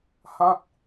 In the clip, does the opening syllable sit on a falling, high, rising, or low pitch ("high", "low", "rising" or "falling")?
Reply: high